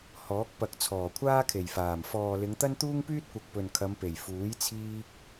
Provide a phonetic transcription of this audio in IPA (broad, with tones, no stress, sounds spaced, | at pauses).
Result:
h ɔː˨˥ k̚ p ɐ˨ k̚ t͡sʰ ɔː˨˩ kʷʰ aː˥ kʰ e˨˩ j f aː˨˩ m f ɔː˨ l ɪ˨˧ ŋ t̪ ɐ˥ n t̪ uː˥ ŋ p yː˥ t̚ kʷ ɐ˨ k̚ p ɵ˨ n kʰ ɐ˨˧ m p e˨˩ j f uː˨˥ j t͡sʰ iː˧ k̚